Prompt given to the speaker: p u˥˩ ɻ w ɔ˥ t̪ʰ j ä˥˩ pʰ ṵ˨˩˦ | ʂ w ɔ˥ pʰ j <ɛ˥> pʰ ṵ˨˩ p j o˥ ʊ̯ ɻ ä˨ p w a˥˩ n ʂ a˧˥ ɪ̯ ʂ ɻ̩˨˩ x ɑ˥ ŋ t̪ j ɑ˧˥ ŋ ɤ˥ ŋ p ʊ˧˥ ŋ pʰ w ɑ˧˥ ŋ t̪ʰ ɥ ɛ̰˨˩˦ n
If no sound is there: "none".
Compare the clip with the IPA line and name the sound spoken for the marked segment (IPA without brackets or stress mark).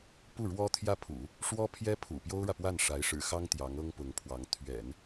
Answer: ɛ˥